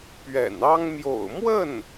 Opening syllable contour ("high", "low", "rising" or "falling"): low